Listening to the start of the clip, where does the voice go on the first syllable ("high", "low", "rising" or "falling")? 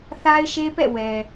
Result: high